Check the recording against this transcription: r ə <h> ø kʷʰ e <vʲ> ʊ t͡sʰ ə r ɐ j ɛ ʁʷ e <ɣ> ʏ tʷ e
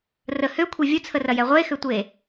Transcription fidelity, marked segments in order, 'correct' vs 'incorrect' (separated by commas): correct, correct, incorrect